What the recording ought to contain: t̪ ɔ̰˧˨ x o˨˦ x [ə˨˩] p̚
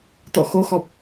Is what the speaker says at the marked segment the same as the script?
no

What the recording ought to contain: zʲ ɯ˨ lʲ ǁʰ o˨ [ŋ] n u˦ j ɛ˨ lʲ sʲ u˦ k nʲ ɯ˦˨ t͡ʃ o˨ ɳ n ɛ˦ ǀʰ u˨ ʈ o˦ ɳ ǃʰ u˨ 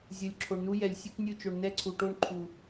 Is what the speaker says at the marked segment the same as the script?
no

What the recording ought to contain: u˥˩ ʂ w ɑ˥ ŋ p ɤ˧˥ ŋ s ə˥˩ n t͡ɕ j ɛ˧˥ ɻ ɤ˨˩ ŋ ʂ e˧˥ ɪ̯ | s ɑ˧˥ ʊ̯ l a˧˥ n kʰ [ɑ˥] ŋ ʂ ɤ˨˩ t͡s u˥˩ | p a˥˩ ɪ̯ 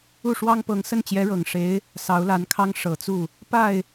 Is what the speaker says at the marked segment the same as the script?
yes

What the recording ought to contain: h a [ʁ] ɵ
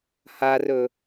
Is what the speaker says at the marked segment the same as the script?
no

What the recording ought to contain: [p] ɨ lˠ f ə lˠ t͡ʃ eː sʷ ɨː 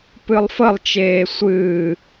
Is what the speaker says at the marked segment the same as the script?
yes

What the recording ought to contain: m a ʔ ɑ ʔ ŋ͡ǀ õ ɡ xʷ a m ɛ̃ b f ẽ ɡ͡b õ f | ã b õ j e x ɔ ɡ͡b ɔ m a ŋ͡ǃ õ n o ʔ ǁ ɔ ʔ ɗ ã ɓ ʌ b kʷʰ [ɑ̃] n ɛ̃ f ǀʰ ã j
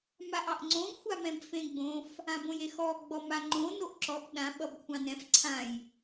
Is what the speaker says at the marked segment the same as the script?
yes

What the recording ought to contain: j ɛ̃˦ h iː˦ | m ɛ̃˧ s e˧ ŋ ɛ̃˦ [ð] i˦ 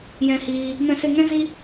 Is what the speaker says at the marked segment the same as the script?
no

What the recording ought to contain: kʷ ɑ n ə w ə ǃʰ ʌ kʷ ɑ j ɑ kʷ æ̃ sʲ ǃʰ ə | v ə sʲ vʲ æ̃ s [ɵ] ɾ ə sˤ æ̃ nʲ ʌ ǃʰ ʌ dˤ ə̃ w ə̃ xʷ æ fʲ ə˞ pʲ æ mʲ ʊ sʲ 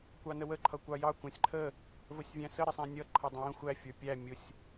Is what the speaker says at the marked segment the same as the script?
no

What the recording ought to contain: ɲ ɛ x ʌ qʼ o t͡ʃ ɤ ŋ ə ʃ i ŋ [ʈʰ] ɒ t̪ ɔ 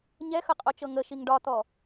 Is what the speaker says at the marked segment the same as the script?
no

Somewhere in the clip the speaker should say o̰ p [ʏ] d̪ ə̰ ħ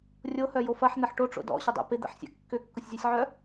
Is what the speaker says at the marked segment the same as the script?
no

